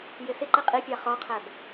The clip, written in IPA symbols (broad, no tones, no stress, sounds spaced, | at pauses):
j ɪ s ɪ ǃ ɪ qʼ i pʲ a χ ɔ qʰ ɛ b